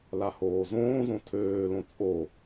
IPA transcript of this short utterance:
l a h oː z õː z õ tʰ øː l õ t͡sʼ o

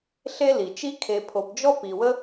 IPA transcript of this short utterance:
ɬ e˦ l i˩ t͡ʃ i˦ kʰ e˨ pʰ o˨ p d͡ʒ ɔ˥ p i˨ w ə˥

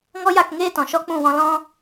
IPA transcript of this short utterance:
ŋ ɔ˦ j a˦˨ k ŋ eː˦ t ɔ̃˨ ʃ ɔ˦ k͡p ũ˦˨ w ɔ̃˧ l ɔ̃˧

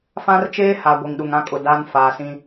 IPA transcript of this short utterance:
f ã˦ r t͡ʃ eː˦ h a˨ ɡʷ i˨ ŋ ɗ u˨ ŋ ã˦ kʼ ʊ˨ d a˦ n f aː˨ s ĩ˦

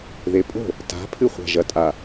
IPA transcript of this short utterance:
ð e pʼ o̤ | t a̤ pʰ ɨ χʷ a̤ ʒ ɐ tʼ a

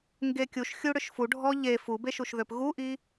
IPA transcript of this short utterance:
ŋ ɡ e kʲ u ʃ xʲ u ɽ ʏ ʃ f u ɖʱ ɔ ʎ e f u b e ʃ u ʃ ð ø p ɣ u ʔ i

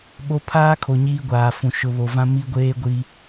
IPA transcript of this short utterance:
ɓ o˦ pʰ aː˦ kʰ o˨ ɲ iː˦ ɡʷ aː˨ f ũ˨ ʃ ʊ˨ β o˨ v ã˦ m i˦ ɡʷ eː˦ ɡʷ i˦

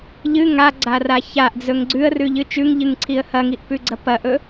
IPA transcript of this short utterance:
ʎ ɨ ŋ a ɡ͡ǀ a r a ç a ʔ d͡z ɵ ŋ ɡ͡ǀ ʉ ə̯ r ʉ ʎ ɨ t͡ʃ ʉ ŋ ʎ ɨ ŋ ǀʰ i ə̯ h ɐ ŋ i ʔ p ʉ ɡ͡ǀ ɐ p ɐ ʔ ɵ

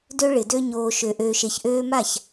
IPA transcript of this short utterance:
d ø˧ ɭ ɪ˨ d ø˧ ɲ oː˨ ʃ ø˨ ʔ øː˨ ʃ e˨ ç ʔ øː˧ m a˦˨ ç

